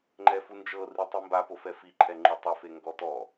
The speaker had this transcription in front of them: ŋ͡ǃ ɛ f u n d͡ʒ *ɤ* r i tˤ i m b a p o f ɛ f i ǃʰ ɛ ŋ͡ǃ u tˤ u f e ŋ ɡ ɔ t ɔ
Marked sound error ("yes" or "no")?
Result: no